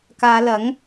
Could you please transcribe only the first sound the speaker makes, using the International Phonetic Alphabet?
k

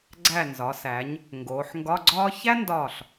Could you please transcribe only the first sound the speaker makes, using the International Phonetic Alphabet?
ɡ͡ǀ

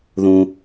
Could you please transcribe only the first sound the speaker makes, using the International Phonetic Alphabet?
ð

